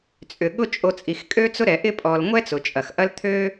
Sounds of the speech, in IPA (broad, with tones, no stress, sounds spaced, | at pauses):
t͡sʼ ʏ˩ ɠ ʊ˦ t͡ʃʼ o˨ t͡sʼ i˩ x kʼ ø˦ t͡s ʊ˦ ɾ ɛ˩ ʔ ɪ˦ pʼ ɔ˩ l ŋʷ ɛ˦ t͡s ʊ˩ t͡ʃʼ ɐ˩ x ʔ ɐ˥ l t̪ʰ ø˥